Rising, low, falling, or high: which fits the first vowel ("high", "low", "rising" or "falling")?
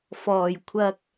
low